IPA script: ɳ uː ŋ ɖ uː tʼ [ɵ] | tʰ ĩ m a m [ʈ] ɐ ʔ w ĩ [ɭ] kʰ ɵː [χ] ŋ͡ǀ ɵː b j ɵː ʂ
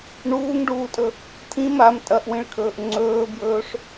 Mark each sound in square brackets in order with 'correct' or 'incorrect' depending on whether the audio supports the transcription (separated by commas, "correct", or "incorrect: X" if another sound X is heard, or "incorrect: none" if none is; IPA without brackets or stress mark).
correct, incorrect: tʼ, correct, incorrect: ʔ